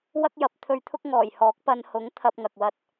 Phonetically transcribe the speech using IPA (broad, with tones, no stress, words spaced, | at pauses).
wɐ˥k̚jɐ˨˥p̚t̪ʰɵ˧ɥt̪ʰʊ˥k̚ ŋɔː˨˩jhɔː˨˥k̚pɐ˧n hʊ˨˥ŋ t̪ʰɐ˧p̚ŋɐ˨k̚wɐ˧t̚